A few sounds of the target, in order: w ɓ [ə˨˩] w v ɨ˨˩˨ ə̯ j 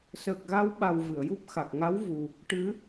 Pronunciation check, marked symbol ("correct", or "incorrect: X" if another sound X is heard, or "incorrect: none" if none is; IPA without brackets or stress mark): incorrect: a˨˩